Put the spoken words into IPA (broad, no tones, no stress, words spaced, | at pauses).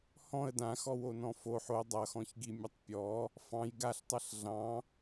hɔ̃ə̯ dãxɔwonɔ̃ foħ o dˤʌxɔ̃çɡimʲʌtˤ pʲɔ | fɑ̃j ɡaɬtˤʌɬ ɮɑ̃